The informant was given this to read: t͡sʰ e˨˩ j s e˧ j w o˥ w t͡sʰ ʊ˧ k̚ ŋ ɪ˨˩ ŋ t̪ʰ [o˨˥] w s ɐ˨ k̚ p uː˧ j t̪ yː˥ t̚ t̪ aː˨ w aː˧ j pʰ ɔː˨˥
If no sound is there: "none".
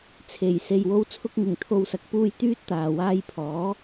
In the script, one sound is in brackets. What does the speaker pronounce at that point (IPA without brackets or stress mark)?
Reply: o˨